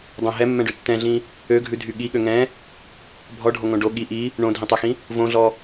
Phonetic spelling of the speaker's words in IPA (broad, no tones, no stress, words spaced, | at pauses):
dˤõ ɦɛmːɛ̃ɖʉ tːɛ̃ɮĩ | øɡʱʉdʱy ɠiɠø ŋɛ̃ | bʱɔɖʱoŋõ ɖo ɠi ʔi | ɳõdʱĩtˤɛxĩ | võɮɔ